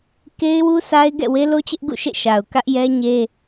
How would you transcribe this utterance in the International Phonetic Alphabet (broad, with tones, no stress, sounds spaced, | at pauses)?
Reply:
k e˦ ɪ̯ w u˦ s a˦ ɪ̯ ɡ ɛ̰˦˨ w e˦ l o˦ t͡ɕ ɪ˦ ʔ ɡ ṵ˦˨ ʃ ḛ˦˨ ʃ a˨ ʊ̯ k ä˦ ʔ j ɛ˦ ɲ e˦